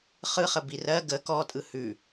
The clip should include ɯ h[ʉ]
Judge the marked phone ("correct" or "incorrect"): correct